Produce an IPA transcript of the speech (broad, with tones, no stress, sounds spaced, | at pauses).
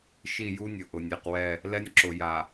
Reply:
ʃ i˦˨ j u˦ nʲ ʊ˨ ʔ ʊ˨ nʲ e˨ q w ɛ˦˨ | l ɛ˦ nʲ ǁ ʊ˨ j a˨